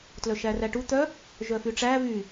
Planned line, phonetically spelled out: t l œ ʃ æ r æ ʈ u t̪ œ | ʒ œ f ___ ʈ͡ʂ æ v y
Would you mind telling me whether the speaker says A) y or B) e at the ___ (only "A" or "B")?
A